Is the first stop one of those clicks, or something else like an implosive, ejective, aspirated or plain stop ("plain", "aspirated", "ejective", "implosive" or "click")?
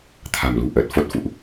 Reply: aspirated